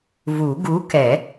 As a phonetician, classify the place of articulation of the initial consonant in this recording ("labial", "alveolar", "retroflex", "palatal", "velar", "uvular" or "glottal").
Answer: labial